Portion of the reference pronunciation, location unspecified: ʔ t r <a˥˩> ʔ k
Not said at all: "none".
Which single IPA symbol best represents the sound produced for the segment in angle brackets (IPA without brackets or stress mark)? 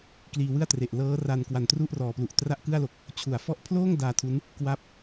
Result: a˥˩